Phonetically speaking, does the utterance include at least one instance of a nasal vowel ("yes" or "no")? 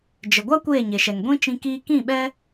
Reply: yes